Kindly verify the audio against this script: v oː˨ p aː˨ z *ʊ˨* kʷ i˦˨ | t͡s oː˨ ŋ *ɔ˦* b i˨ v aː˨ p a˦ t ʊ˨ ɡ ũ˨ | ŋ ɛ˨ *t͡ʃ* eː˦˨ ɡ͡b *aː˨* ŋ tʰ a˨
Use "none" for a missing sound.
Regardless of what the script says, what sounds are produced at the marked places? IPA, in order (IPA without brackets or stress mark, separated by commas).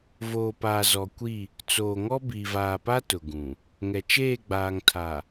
ɔ˨, ɔ˦, t͡ʃ, aː˨